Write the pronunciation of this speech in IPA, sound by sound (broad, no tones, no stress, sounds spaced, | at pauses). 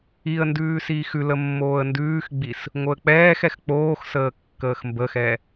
i ə̯ n d ʉː s iː x ʉ l ə mː oː ə̯ n d ʉː x ɡ͡b i s | ŋ o ə̯ k͡p ɛː x ɛ x k͡p oː x s əː kː əː x m b ə x ɛ